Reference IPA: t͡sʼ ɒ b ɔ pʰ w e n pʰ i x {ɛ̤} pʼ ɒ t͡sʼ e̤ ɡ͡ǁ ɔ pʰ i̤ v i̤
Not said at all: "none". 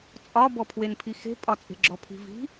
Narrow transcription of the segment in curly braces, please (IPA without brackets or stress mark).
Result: e̤